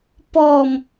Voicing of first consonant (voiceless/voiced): voiceless